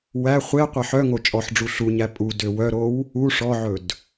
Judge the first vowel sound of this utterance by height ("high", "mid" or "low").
low